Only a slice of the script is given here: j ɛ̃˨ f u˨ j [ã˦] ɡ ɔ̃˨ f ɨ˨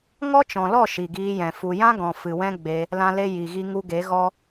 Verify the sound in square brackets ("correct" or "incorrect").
correct